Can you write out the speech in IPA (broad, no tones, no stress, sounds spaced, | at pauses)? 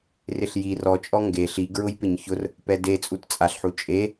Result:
r ɪ ɬ j i r ɔ t͡ʃʼ ɔ ŋ ɡ e ɬ i ɡ ɹ ʊ j p ɪ ɲ ç ʊ r | p ɛ d e t͡sʼ u t t͡sʼ a ɬ ħ u t͡ʃʼ e